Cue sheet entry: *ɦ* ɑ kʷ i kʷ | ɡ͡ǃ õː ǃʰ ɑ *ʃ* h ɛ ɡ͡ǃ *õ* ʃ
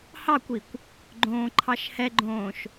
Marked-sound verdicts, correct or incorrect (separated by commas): incorrect, correct, incorrect